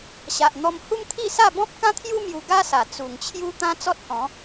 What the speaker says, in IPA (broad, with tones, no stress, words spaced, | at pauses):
ɕa˨ʔ n̪ɔ˧m hu˦mt̪ʰi˥˧sa˥˧ bɔ̃˦p̚ kã˦t̪ʰju˦ mju˧ɡa˦sa˨˩ t͡su˨˩ŋt͡ɕʰju˦ t̪ã˦t͡sɔ˦t̚hɔ̃˨˦